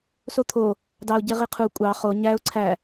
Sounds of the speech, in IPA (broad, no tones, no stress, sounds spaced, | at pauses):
s o t̪ʰ o | d ɑ ʊ̯ ɟ e ʁ i qʰ u kʷʼ ɑ χ o ɲ æ ʊ̯ ǀʰ æ